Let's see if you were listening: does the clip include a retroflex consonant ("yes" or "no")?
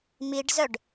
yes